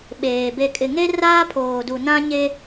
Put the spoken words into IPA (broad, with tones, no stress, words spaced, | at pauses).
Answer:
ɓeː˨ be˨kʼɪ˨ŋe˦ raː˦pʰoː˨du˨ nã˦ɲe˦